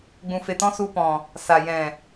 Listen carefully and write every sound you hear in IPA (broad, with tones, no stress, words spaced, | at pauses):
ɡ͡bũ˨fe˨tɔ̃˧ su˧pɔ̃˨ | sa˨ jɛ̃˨